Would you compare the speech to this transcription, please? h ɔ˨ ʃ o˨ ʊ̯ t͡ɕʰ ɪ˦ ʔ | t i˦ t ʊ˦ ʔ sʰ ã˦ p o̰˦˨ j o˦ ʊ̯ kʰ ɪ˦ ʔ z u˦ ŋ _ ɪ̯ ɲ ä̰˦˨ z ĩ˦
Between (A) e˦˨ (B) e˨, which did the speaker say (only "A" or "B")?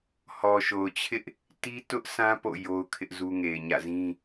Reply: B